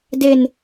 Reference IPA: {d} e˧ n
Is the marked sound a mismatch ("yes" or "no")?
no